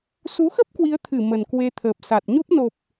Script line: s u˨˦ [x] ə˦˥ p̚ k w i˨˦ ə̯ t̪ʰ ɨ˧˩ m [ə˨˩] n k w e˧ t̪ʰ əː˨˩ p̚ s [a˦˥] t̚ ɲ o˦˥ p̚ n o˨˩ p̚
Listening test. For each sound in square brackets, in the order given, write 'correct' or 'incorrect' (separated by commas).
correct, correct, incorrect